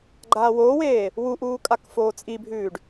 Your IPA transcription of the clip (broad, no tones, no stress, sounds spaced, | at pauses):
ɡ͡ǃ aː w oː w eː | w u ʔ uː kʼ a k f oː t͡sʼ i bʱ ʉː ɖ